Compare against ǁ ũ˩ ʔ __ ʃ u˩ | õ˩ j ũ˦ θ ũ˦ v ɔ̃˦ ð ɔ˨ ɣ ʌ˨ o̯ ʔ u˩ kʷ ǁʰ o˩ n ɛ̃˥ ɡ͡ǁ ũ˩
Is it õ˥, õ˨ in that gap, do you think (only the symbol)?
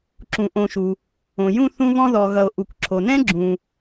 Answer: õ˨